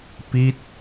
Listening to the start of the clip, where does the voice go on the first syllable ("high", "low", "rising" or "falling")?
falling